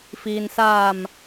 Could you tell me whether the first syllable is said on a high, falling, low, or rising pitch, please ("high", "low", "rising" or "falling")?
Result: low